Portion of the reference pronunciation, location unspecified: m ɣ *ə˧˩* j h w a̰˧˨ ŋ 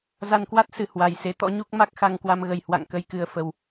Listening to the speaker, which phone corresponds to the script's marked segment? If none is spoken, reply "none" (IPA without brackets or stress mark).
ə˧˩